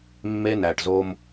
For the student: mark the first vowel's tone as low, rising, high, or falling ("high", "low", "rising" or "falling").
high